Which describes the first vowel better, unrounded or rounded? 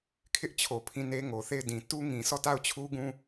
unrounded